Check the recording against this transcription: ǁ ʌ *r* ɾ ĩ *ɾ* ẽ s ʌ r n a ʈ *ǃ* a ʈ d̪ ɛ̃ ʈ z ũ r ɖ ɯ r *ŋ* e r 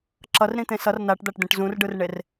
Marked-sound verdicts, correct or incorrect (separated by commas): correct, incorrect, incorrect, incorrect